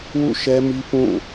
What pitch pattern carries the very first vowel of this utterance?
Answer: falling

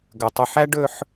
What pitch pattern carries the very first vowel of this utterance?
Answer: low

